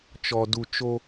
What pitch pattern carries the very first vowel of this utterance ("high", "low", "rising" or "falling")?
low